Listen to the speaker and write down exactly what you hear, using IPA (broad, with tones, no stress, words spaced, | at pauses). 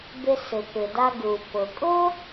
bɪ˧sɪ˩pɪ˩da˧ ɡu˩ pʊ˩kʼʊ˥